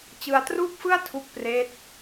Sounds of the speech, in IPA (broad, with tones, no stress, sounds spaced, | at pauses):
t͡ɕ ɯ˧ a̯ t r uː˥˩ k̚ f ɯ˥˩ a̯ tʰ u˦˥ k̚ p r eː˦˥ t̚